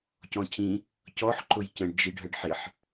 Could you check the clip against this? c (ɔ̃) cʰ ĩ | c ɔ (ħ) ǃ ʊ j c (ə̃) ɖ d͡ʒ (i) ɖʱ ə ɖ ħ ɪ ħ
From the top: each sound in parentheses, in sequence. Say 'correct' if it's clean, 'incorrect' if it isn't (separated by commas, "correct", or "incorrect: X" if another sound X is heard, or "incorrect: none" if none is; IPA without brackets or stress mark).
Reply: correct, correct, correct, correct